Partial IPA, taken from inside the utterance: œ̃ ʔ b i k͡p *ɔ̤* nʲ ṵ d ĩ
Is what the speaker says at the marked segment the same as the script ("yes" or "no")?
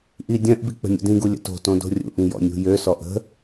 no